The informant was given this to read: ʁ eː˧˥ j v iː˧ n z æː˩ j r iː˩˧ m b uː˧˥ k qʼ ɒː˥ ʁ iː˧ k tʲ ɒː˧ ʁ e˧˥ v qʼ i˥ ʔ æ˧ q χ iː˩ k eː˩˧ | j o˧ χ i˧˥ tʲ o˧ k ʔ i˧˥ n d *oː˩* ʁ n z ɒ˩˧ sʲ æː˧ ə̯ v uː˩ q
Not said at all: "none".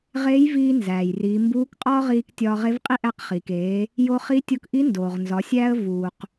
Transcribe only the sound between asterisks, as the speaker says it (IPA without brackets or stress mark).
oː˩